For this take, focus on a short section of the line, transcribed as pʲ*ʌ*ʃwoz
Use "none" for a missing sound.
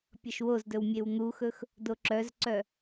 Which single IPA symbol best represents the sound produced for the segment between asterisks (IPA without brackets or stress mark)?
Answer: ʌ